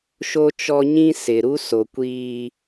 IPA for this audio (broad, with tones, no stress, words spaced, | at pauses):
ʃo˦t͡ʃɔ˦ɲĩ˦ sɪ˨ ɾu˦ so˨ kʷiː˦